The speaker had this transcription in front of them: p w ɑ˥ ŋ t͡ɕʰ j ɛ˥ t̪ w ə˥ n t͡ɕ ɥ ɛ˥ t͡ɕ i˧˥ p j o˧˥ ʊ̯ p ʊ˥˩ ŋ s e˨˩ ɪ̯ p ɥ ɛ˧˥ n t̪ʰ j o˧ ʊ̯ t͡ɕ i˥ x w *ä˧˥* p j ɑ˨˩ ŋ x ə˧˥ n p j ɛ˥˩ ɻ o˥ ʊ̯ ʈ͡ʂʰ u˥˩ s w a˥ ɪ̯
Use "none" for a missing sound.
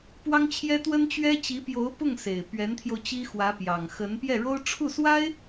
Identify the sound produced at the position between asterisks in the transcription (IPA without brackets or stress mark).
ä˧˥